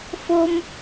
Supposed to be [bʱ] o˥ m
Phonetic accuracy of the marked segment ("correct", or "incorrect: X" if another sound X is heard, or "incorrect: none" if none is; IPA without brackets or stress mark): incorrect: f